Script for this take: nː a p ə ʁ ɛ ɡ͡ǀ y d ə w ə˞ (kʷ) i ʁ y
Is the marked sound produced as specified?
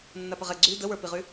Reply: no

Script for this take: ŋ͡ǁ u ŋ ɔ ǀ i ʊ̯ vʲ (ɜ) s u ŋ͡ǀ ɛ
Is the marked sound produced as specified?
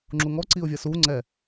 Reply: yes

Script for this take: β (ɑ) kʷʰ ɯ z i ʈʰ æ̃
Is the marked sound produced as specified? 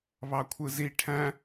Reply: yes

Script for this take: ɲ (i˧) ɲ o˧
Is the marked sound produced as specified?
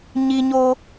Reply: yes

